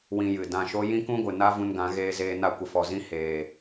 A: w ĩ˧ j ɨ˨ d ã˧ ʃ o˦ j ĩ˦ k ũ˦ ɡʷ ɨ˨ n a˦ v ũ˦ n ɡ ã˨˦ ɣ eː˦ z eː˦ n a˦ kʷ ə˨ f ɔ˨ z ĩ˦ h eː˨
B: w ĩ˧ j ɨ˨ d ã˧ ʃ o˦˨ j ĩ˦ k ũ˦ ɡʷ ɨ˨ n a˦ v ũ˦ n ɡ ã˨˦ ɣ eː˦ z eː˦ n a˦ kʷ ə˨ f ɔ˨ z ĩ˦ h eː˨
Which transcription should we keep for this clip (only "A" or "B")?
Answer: A